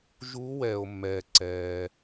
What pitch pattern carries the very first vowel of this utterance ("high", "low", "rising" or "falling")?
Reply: rising